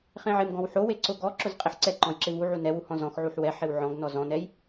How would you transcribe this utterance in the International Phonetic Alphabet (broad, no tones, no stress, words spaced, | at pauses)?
χẽʕɪm ɡɔ̃wħowe ǀʊ ɡɔ ǁʊzqʼeħǀɛ ǃɔ̃jǁɪvuʕu nɛwuhɔ̃ zɔ̃x ʕuħwɛ ħɪwʕɔ̃ɡ nɔzɔ̃nɛj